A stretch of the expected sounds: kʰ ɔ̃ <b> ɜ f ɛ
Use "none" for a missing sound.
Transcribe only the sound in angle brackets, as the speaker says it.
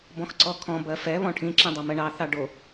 b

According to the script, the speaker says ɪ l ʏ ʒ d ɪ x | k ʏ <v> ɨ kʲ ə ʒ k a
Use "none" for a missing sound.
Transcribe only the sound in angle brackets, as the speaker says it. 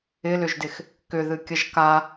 ð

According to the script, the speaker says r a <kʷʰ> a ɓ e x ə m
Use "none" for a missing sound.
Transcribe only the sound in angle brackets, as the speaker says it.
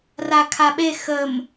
kʰ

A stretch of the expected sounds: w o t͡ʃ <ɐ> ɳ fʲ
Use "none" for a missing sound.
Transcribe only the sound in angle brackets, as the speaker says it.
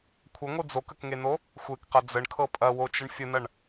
ə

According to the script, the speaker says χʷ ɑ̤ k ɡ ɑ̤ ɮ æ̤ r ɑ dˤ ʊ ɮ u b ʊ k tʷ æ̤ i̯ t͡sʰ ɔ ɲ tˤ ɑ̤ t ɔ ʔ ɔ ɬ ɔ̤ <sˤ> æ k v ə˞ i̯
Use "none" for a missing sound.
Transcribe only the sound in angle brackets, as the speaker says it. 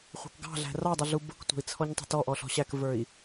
ɕ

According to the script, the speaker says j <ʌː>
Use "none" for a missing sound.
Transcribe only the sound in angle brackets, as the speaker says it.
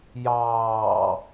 ɑː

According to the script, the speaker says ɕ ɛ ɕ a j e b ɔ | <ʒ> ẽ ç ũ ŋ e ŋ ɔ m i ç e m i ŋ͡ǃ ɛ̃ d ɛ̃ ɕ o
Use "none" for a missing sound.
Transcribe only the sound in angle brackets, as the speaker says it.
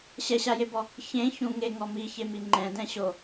ç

